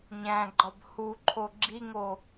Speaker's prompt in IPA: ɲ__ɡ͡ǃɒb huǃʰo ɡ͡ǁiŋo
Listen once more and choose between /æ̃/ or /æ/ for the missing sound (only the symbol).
æ̃